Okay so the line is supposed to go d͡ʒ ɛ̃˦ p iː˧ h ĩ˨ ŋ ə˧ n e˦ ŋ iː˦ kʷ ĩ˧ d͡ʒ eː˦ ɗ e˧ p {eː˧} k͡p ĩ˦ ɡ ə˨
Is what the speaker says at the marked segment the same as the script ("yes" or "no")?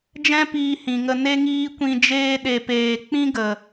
yes